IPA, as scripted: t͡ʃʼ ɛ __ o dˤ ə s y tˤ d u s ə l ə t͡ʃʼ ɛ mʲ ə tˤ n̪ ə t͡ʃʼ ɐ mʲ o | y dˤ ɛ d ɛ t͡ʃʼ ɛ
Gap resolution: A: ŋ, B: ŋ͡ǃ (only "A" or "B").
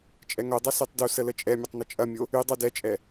A